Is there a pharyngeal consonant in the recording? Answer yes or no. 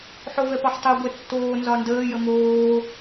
yes